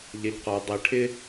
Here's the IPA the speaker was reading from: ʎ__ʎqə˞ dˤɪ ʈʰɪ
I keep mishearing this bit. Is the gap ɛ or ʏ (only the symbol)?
ɛ